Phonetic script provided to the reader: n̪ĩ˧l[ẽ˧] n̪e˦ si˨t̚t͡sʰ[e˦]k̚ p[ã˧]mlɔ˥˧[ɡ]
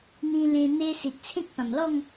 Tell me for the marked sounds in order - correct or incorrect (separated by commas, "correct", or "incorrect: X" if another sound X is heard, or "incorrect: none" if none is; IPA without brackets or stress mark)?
correct, incorrect: ẽ˦, incorrect: ã˨˩, incorrect: ŋ